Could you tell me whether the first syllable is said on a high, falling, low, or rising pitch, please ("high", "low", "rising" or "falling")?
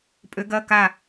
rising